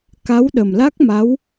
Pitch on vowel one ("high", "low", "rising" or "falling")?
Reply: rising